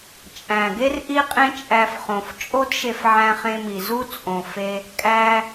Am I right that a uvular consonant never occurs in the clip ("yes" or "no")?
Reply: no